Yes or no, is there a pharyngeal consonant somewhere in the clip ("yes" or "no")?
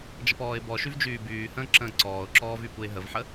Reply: yes